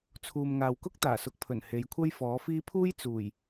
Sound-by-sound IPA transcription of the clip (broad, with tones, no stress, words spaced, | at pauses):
t͡sʰuː˨mŋaː˨wkʊ˥k̚t̪aː˨˩ sʊ˨˥k̚pʰɵ˨˩n he˨˧jkʷʰɐ˥jfɔː˨˥fiː˥ pʰuː˥jt͡suː˨˩j